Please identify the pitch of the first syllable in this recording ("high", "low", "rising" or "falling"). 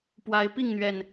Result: rising